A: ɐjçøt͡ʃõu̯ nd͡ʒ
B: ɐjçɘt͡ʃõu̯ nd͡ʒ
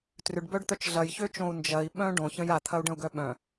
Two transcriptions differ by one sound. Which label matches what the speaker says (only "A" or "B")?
A